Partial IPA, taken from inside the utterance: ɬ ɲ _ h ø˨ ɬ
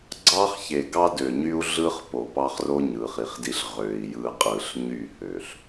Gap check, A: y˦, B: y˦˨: B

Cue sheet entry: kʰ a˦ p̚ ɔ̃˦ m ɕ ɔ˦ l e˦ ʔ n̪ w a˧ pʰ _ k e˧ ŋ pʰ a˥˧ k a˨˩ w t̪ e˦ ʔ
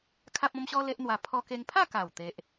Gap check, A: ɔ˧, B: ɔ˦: B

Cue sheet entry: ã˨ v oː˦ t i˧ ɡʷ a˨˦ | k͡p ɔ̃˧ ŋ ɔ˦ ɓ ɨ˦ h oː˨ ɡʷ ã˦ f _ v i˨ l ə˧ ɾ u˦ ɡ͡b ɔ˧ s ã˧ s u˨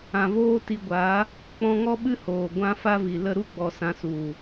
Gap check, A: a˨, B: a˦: B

